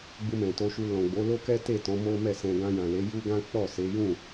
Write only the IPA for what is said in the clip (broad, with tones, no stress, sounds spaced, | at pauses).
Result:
ɡ͡b u˧ m ɛ̃˨ t o˧ ʃ u˧ l ɔ̃˨ ɡ͡b o˨˦ l o˦ k ɛ˦ t e˦˨ t ɔ̃˨˦ m o˦ m ɛ˦˨ s ɛ̃˧ ɡ ã˧ j ã˨ l e˨˦ j u˦ ɡ ã˦ k͡p ɔ˦˨ s e˨˦ j ũ˦˨